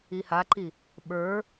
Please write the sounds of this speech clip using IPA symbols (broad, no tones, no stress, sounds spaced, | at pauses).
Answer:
i h a ǃ i | ɓ ə˞